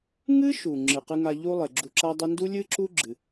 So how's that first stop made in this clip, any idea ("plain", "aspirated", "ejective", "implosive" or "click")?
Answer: click